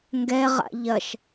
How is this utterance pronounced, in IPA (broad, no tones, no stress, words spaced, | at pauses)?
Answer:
ŋɡɛʁa̰ ʎɐʃ